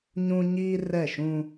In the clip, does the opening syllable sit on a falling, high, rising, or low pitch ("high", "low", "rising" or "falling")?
high